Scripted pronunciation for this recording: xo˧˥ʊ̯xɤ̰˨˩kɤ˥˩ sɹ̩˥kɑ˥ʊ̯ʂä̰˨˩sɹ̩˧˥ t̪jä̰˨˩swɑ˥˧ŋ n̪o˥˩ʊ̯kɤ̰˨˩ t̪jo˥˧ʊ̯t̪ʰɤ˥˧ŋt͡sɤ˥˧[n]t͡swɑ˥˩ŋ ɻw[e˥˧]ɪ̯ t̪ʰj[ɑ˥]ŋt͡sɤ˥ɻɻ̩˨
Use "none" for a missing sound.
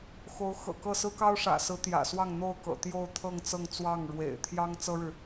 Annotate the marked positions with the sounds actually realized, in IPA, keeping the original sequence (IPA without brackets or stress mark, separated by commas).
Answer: ŋ, ḛ˨˩, ɑ˥